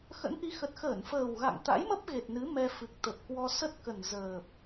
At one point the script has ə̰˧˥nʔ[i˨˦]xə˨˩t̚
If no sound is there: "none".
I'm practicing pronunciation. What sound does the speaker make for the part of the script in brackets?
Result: i˨˦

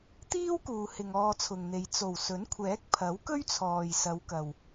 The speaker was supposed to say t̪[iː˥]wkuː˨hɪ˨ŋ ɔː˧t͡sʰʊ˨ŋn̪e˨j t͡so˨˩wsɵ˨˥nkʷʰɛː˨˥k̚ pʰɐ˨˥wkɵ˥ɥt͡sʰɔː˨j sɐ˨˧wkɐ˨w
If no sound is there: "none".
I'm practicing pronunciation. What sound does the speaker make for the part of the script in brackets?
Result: iː˥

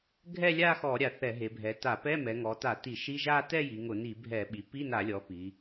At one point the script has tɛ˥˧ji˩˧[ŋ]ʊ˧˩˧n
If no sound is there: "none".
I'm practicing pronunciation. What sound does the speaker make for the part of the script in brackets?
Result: ŋ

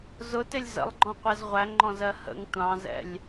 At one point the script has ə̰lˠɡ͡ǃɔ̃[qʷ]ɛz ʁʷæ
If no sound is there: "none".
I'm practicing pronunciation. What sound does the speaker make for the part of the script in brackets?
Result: qʷ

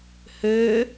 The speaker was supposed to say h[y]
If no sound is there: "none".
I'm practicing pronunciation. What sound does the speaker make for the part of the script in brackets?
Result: ø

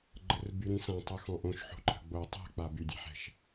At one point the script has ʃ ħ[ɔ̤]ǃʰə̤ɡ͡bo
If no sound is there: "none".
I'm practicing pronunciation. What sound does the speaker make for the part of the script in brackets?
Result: o̤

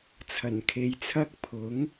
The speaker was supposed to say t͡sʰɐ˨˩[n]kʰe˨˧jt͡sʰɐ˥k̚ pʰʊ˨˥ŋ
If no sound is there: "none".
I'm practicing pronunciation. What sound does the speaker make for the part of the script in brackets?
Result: n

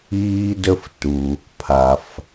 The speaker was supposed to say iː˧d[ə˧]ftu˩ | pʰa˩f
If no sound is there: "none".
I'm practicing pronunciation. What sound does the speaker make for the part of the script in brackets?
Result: ə˧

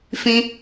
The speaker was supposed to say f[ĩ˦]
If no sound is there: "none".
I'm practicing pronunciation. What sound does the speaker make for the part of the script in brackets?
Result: ĩ˦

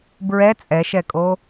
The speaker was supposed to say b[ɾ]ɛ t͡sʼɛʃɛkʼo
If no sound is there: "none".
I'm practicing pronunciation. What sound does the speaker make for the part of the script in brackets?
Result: ɹ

